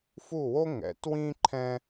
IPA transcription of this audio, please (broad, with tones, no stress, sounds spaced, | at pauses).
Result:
f u˥˩ w o˥ ŋ ɛ̰˩˥ t w ĩ˥ ǃʰ ɛ̃˥